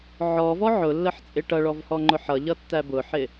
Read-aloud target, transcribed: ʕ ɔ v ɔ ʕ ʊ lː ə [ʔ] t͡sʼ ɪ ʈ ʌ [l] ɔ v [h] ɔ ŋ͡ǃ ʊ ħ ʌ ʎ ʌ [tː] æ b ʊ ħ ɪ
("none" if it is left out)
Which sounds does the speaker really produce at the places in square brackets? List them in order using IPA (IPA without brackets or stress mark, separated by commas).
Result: ħ, ɭ, h, tː